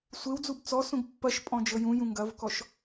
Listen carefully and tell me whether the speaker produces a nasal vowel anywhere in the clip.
yes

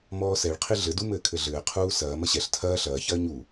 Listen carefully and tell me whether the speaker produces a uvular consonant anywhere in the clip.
yes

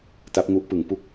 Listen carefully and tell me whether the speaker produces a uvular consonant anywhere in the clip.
no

